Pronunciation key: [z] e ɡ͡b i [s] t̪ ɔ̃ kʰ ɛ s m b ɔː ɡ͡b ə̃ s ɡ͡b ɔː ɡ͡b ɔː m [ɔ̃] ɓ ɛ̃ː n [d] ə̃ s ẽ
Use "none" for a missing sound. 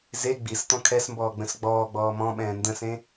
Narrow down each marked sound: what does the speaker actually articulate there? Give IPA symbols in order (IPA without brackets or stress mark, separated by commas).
z, s, ɔ̃, d